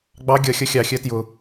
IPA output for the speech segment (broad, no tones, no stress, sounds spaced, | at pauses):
ɡ͡b ɑ ɡʲ ʌ xʲ ʌ xʲ ɑ xʲ ɜ t j ʊ